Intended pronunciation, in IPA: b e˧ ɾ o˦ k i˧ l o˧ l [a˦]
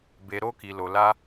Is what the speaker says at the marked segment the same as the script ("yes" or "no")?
yes